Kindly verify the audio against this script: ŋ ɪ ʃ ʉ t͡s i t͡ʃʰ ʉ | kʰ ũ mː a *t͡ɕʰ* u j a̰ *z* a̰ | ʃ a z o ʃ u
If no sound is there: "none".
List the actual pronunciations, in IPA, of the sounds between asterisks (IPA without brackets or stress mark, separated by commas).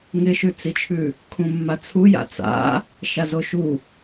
t͡sʰ, t͡s